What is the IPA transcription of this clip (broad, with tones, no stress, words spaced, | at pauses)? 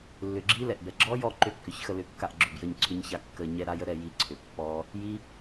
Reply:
lːʏ˨˩ɡ͡ǁi˦˥ lɛ˨˩ʔbɛ˨˩ ɡ͡ǁɔ˦˥jɔ˦˨ ǃʏ˦˨kːʏ˨˩çxə˦˨ lʏ˦˨kːa˦˨ʔɡ͡ǁʏ˨˩bjə˦˨ɲ ǀʰʏ˦˥ɲça˦˥ kːə˦˨ ɲɛ˦˥ɾa˦˥jə˦˥ ɾɛ˦˨ ji˦˨ǀʰʏ˨˩ pːɔ˦˥ | ji˦˥